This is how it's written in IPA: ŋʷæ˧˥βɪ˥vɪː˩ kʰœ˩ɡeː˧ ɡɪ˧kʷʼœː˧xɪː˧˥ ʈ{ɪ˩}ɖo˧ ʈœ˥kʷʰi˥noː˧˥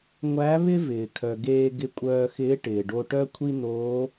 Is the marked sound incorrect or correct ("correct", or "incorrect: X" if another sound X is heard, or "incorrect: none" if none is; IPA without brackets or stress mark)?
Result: incorrect: ɪː˩